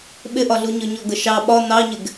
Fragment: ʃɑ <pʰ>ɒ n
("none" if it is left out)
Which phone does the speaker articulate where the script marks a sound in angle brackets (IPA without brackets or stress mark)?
ɓ